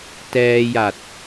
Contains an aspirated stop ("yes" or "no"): no